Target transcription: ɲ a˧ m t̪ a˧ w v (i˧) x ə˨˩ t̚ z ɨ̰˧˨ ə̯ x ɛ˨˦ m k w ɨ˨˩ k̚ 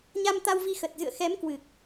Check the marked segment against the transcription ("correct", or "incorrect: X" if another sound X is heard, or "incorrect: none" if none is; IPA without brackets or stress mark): correct